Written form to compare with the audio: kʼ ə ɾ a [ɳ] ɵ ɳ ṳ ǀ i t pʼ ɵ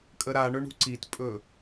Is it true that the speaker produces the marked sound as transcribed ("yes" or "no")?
yes